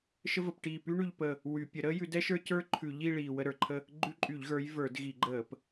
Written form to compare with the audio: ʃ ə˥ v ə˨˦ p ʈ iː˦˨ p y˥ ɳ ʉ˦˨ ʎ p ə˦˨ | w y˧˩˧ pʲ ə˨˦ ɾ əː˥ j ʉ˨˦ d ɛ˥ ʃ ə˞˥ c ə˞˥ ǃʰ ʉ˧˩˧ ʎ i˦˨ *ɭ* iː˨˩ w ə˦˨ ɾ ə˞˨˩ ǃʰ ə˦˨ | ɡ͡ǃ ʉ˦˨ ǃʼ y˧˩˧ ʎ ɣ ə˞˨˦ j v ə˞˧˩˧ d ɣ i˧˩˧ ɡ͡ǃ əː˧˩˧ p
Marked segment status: correct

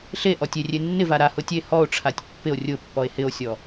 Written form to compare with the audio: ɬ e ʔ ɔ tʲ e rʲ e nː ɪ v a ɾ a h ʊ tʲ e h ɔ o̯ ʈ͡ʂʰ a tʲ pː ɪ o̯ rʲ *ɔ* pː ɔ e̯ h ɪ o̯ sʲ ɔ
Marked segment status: incorrect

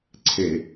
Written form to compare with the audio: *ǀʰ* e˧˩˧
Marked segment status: correct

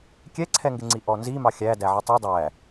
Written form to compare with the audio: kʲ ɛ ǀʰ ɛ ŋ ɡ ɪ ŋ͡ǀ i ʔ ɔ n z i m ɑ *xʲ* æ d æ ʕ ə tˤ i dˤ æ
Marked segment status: correct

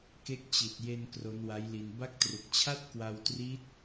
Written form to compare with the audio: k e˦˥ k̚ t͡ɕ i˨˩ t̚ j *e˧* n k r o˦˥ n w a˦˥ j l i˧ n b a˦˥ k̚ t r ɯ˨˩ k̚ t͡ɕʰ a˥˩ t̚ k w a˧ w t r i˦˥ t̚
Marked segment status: correct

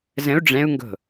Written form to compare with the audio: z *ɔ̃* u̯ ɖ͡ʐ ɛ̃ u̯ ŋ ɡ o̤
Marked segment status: incorrect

